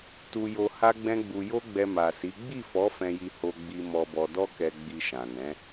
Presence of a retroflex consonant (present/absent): absent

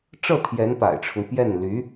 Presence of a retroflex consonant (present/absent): present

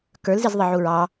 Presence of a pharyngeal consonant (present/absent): present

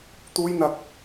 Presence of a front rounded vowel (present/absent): absent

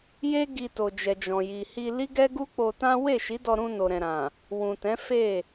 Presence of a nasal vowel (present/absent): present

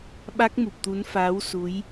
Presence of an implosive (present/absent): present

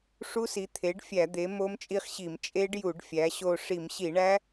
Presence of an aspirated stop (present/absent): present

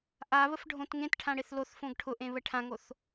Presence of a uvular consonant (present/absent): absent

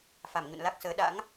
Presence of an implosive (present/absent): present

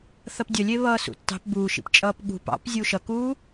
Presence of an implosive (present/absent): present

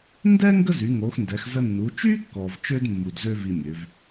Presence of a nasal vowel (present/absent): absent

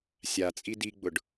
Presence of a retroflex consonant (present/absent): present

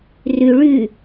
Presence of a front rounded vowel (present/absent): present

